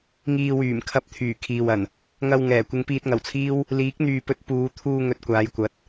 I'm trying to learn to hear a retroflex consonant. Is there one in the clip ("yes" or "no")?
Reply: no